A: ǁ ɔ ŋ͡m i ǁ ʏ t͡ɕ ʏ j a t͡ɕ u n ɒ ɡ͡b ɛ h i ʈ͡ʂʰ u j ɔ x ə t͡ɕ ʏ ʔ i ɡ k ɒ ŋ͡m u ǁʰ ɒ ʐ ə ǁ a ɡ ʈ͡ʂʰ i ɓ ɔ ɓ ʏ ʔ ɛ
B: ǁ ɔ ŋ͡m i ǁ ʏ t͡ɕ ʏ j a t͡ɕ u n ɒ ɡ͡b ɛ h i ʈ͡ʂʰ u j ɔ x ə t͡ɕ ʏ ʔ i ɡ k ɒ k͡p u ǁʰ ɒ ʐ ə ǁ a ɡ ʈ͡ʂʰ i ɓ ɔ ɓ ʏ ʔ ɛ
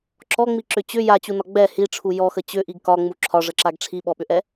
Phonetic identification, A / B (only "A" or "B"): A